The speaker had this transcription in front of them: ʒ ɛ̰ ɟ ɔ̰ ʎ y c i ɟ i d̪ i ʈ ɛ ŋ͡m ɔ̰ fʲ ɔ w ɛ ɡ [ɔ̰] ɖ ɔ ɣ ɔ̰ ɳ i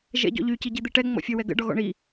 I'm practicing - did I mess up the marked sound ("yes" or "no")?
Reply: yes